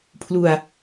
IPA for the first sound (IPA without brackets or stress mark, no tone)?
pʰ